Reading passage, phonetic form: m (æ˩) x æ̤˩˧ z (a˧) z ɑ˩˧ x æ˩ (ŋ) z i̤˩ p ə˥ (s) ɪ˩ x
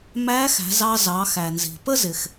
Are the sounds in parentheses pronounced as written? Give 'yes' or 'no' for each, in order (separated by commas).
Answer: no, no, no, no